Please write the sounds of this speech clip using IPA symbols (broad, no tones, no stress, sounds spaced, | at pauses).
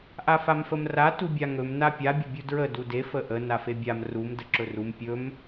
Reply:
ʔ a f a m f ə m r a t u bʲ a ŋ ɵ m n a pʲ a bʲ ə bʲ u d ɹ ə d u d e f ə ʔ ə n a f e bʲ a m r u m d ə ǁ ɵ r u m pʲ ɵ m